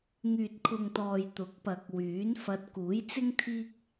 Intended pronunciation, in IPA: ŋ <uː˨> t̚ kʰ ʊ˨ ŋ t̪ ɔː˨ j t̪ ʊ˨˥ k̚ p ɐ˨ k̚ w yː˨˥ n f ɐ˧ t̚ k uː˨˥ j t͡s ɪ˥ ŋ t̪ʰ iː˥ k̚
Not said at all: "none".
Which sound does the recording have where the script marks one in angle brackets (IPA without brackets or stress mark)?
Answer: yː˨